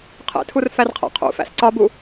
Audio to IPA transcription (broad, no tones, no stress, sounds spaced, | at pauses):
qʰ ḛ tʰ u r f æ r qʰ æ̰ qʰ ṵ f æ̰ s ǀ ɒ b u